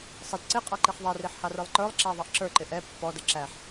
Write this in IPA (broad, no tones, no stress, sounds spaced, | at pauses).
sˤ ɪ d ǀ ɪ qʼ ɑ ǃ i χ ðˤ ɛ r i ħ h ɑ r ə˞ lˠ ǃ ə˞ lˠ ǁ æ ðˤ ɑ ʔ ǁ ə˞ ǃ ɪ ʔ ɛ pː ɔ d ə ǁ æ ħ